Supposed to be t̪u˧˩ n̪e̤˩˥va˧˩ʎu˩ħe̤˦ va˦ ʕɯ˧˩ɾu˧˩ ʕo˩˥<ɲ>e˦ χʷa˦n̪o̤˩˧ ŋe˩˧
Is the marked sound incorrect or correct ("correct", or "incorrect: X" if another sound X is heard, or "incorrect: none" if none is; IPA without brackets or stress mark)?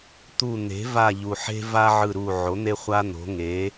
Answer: incorrect: n̪